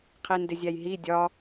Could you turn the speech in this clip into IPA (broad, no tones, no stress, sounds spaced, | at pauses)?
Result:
qʰ i n d ɪ zʲ æ j ɦ i dʲ ɒ